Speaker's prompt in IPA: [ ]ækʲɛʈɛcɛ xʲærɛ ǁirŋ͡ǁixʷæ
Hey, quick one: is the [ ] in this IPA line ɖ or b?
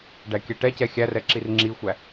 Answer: ɖ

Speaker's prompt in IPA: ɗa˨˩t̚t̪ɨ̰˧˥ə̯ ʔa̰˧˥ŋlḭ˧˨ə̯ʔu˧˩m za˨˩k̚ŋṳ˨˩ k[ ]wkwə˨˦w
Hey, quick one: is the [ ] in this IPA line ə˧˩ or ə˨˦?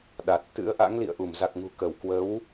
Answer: ə˧˩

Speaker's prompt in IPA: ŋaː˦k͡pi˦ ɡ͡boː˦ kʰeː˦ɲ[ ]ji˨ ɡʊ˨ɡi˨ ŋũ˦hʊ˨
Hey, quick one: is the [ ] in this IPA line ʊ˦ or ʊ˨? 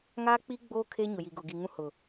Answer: ʊ˨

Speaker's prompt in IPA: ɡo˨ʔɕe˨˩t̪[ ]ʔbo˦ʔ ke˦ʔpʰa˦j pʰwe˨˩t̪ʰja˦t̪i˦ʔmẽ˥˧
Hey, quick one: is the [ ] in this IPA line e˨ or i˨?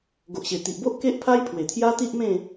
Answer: i˨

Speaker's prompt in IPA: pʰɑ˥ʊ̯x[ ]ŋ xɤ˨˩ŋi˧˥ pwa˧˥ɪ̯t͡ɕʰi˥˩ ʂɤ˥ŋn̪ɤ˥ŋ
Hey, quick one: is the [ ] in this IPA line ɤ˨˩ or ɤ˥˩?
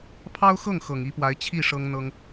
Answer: ɤ˥˩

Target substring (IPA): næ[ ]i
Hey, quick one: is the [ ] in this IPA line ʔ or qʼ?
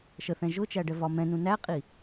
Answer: qʼ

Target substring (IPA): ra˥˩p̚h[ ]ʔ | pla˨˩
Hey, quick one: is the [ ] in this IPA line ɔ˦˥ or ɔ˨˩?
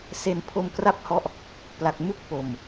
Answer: ɔ˦˥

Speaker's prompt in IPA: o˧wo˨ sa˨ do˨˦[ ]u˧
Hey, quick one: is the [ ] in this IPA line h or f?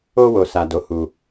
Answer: h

